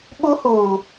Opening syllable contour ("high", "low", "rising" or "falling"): high